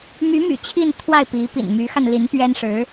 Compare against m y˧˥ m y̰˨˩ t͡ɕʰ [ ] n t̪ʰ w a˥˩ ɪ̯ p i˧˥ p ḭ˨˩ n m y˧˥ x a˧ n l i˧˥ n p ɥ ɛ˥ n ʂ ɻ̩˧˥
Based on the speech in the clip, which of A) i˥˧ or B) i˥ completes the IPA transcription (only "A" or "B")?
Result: A